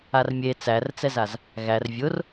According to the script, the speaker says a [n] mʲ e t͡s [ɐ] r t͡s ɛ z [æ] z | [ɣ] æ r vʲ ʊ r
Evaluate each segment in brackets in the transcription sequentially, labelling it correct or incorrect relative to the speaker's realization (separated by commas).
incorrect, incorrect, incorrect, correct